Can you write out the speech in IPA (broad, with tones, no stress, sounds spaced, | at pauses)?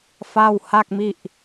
f a˥˩ w h a˥˩ k̚ m i˥˩ ʔ